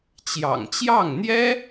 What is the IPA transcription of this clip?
t͡ɕ j ɑ̰˨˩ ŋ t͡ɕ j ɑ˥˩ ŋ n̪ j ɛ˥

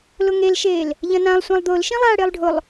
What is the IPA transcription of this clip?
l ʊ ŋ e l ʃ eː l | ʎ ɐ̃ n ã lˠ sʷ ã lˠ d̪ ʊː l ʃ ĩ lˠ aː ɽ ɪː lˠ ɖʱ ʊ lˠ

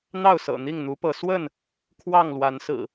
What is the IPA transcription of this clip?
n̪ ɑ˥˨ ʊ̯ s ɤ̰˨˩ n̪ i˥˨ ŋ n̪ u˨˦ p ɤ˨˦ s w ə˥˨ n | kʰ w ɑ˥˨ ŋ l w a˨˦ n s ɹ̩˨˩

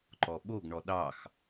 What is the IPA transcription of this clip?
ǃ ɔ ɓ o ɡ ɳ ɔ ɗ ɑ x

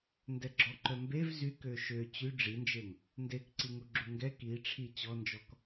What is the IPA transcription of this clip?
n d ɛ ɡ͡ǁ ɔ ǃ œ m b e v z y k ø ʃ ø t͡ɕ y ɖ͡ʐ i n d͡ʒ e ŋ | n d e k ǀ i ŋ u ɡ͡ǁ u ŋ ɡ ɛ k i ʈ͡ʂʰ i t͡ɕ ɔ n d͡ʒ ɔ k

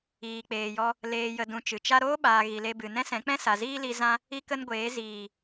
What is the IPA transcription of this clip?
iː˨ k͡p eː˨ j ɔ˧ | l eː˧ j ə˧ d ũ˧ t͡ʃ ɨ˨ t͡ʃ a˦ ɾ oː˦ ɓ aː˨ ɣ i˨ l e˧ b ɨ˨ n ɛ̃˦ s ɛ̃˨˦ k͡p ɛ̃˦ s a˨ z iː˦ l i˧ z ã˦ | i˦ k ə˦ n ɡʷ eː˨˦ z iː˨

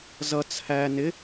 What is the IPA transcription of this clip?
z ʌ t͡sʰ æ n ɪ

